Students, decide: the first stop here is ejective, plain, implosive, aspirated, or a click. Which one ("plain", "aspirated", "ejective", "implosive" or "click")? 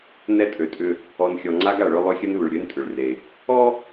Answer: ejective